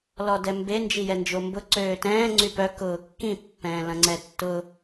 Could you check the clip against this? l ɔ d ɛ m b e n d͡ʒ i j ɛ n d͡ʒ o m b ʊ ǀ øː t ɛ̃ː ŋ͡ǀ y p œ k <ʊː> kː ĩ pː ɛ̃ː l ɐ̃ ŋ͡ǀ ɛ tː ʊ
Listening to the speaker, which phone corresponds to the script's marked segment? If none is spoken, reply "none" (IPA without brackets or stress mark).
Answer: ʊː